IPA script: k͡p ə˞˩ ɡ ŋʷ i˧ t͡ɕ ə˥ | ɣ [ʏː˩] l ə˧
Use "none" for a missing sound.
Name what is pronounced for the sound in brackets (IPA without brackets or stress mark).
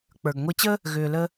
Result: ʏː˩